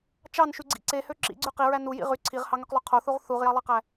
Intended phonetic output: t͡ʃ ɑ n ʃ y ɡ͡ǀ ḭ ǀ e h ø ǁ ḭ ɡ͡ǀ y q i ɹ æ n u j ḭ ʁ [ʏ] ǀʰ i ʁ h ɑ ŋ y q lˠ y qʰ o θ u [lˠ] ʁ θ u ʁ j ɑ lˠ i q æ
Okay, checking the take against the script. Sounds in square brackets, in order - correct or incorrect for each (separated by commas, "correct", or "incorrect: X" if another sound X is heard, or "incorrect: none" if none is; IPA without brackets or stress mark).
incorrect: y, incorrect: none